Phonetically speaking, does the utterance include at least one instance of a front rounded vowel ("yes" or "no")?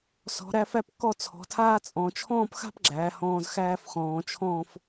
no